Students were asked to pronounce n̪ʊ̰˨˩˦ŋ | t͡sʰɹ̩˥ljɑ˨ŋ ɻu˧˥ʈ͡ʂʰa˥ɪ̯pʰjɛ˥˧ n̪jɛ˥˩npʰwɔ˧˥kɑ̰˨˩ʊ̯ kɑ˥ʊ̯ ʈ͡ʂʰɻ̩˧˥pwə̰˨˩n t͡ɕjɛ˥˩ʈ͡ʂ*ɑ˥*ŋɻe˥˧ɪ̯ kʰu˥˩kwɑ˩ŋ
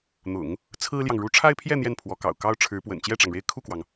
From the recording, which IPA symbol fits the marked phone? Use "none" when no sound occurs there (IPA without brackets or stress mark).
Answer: ɑ˩